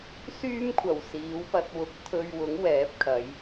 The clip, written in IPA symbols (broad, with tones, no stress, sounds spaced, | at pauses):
s yː˥ m kʷʰ ɐ˨˩ w s iː˨˥ w p ɐ˧ t̚ w ʊ˨˥ k̚ t̪ʰ ɵ˧ ɥ w ʊ˨˥ ŋ w ɛː˨˥ p̚ kʰ ɐ˨˧ j